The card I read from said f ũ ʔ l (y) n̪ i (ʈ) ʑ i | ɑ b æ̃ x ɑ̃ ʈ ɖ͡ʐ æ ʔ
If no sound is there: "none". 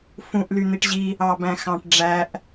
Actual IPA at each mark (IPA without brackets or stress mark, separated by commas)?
y, ʈ